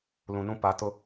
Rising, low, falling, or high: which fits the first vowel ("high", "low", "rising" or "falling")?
low